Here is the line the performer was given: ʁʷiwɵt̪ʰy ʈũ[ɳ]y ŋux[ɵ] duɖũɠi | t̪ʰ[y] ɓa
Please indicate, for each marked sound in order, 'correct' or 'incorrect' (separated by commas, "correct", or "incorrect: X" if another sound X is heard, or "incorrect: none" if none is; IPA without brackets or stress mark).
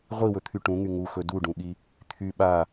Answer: incorrect: ŋ, correct, correct